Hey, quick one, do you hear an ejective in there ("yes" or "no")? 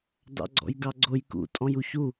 yes